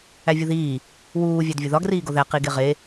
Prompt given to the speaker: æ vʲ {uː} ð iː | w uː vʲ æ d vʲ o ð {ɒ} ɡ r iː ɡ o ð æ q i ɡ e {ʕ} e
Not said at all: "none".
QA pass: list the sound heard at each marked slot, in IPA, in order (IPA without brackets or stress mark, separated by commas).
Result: u, ɒ, ʁ